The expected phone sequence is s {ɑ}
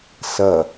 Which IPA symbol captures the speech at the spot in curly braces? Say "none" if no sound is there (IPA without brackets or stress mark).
ɐ